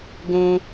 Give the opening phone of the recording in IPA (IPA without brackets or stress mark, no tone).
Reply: ɡ